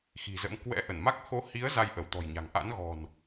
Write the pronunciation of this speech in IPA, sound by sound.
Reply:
x i̤˨˩ z ə̰˧˥ m k w ɛ̰˧˥ ʔ ə˧˩ n m a˦˥ k̚ x o˨˦ h i˨˦ ə̯ z a˧ j ʔ ə˧˩ w t̪ ɔ̤˨˩ j ɲ a̤˨˩ ŋ ʔ a̰˧˥ n ɣ ɔ̤˨˩ n

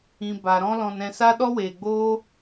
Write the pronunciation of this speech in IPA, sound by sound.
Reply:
ĩ˨ b a˨ ɾ ɔ̃˦ l ɔ̃˧ n ɛ̃˧ s a˦ ɗ ɔ˦ w eː˨ ɡ͡b oː˦

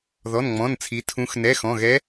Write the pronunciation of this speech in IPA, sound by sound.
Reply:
ð ɔ˩˧˩ n ŋ͡m ɔ̃˩˧˩ n t͡sʰ i˩˧ tʰ ũ˩˧ x n ɛ˩˧˩ x ɔ̃˩˧˩ ɣ ɛ˧˥

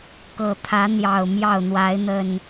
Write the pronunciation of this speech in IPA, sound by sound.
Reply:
k ɤ˨˩ t̪ʰ ä˨˦ n̪ j ɑ˨˩ ʊ̯ m j ɑ˥˨ ʊ̯ n̪ w a˨˦ ɪ̯ n̪ ə˨˩ n

